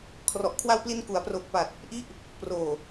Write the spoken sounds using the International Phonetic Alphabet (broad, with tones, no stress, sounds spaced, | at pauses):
kʰ r ɔ˨˩ ʔ kʰ w a˧ w p l i˧ n k u˩˦ a̯ p r o˨˩ k̚ p a˨˩ t̚ | ʔ i˦˥ ʔ | p r oː˨˩